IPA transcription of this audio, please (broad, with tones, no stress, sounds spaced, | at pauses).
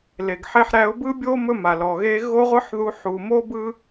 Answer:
l e˨ ɡ ħ e˧ ħ ɾ æ˧ ʊ̯ b ɯ˦ bʲ o˦ m ɵ˦ m a˨ l ɔ˨ ɣ e˦ ɣ o˦ ʁʷ ɯ˦ ħ ð u˧ ħ u˨ m o˦ b ɯ˦